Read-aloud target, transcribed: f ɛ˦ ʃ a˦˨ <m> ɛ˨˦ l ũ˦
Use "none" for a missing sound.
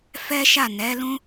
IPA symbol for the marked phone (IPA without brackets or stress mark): n